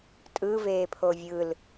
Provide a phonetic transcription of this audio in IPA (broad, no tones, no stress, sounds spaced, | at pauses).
tʼ ɯ v eː pʰ o vʲ ɯ l